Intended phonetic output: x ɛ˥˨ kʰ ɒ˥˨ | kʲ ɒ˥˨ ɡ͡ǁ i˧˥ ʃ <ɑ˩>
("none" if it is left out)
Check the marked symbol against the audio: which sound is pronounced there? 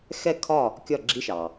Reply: ɑ˩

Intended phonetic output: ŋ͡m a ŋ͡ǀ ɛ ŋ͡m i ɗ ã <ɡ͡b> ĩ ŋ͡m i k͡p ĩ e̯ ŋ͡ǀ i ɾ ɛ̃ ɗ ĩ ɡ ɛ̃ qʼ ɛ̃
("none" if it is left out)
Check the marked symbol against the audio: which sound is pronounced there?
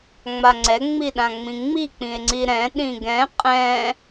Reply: ŋ͡m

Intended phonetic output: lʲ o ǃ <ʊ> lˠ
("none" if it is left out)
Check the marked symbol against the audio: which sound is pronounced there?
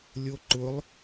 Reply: ʊ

